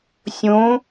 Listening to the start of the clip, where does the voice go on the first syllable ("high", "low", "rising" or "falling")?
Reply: rising